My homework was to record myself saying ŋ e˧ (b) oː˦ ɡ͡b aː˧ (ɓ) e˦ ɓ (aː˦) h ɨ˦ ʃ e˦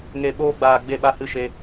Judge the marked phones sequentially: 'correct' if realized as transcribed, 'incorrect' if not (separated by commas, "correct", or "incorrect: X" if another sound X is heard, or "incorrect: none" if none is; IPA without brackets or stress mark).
incorrect: ɓ, incorrect: ɡ͡b, incorrect: a˦